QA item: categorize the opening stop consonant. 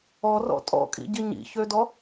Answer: ejective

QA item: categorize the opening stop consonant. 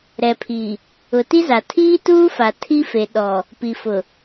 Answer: aspirated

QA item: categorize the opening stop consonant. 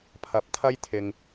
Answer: aspirated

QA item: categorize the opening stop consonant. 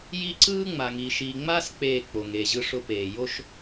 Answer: click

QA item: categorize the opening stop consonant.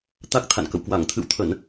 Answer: plain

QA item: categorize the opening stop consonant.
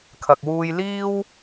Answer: aspirated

